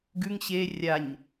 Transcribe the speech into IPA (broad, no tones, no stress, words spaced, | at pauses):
ɡʉŋ ɕe rʲaɲ